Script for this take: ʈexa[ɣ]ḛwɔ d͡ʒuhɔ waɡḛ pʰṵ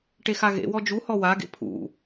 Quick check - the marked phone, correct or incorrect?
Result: correct